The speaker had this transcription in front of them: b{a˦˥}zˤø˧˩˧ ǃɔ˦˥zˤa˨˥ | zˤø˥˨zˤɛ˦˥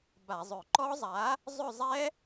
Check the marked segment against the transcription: incorrect: a˧˩˧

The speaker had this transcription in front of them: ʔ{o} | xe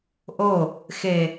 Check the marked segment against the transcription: correct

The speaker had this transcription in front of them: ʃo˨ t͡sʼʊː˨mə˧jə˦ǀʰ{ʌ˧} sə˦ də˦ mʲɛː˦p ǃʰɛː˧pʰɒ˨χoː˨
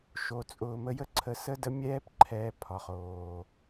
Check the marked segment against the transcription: incorrect: ə˧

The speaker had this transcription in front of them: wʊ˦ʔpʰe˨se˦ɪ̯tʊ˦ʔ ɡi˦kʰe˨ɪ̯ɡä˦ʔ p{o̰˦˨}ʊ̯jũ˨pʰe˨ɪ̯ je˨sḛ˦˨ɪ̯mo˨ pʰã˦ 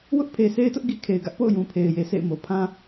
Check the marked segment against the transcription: correct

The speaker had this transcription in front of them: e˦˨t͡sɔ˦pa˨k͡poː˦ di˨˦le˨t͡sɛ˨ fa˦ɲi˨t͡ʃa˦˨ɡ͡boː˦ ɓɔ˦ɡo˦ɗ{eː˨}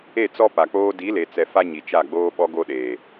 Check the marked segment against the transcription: correct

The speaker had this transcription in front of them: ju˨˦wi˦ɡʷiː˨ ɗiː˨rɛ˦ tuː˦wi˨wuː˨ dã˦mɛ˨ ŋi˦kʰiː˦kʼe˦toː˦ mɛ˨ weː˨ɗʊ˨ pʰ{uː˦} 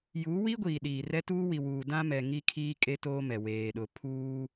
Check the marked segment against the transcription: correct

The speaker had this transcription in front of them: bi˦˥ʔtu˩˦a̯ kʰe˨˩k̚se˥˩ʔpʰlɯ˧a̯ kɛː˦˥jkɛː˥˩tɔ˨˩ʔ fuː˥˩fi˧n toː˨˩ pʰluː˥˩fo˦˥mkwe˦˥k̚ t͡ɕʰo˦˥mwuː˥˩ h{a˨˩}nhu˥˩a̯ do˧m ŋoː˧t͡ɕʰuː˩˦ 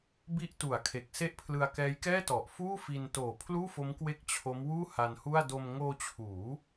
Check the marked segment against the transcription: incorrect: a˧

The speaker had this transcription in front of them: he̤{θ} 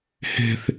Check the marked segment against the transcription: correct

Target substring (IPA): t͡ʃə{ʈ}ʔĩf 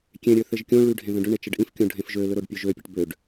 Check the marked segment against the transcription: incorrect: ɖ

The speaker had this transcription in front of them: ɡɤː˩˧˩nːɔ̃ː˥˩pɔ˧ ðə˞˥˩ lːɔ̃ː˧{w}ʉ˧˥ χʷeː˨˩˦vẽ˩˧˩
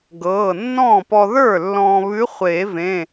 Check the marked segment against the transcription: incorrect: β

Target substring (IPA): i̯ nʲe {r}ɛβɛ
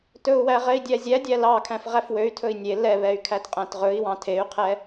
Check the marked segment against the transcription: incorrect: l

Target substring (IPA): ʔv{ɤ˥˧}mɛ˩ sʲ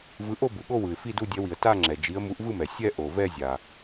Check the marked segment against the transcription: incorrect: ɯ˥˧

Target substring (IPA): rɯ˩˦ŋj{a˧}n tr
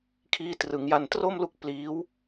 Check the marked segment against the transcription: correct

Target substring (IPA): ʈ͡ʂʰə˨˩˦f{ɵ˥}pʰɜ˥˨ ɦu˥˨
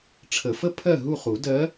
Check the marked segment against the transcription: incorrect: ə˥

